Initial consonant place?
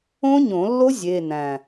palatal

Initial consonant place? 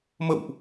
labial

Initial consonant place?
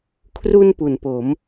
velar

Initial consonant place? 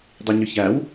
alveolar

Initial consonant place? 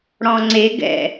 retroflex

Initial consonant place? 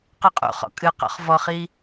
uvular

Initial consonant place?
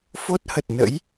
labial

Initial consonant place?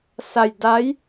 alveolar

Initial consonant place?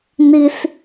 alveolar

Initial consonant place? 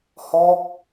glottal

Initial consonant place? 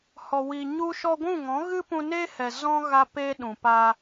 glottal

